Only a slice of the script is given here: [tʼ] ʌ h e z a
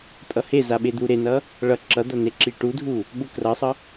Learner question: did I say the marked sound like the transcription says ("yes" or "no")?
yes